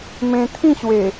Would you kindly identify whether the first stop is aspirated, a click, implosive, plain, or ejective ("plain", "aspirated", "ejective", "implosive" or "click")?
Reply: aspirated